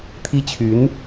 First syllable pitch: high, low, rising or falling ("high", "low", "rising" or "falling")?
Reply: high